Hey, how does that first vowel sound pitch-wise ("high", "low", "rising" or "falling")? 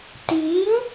rising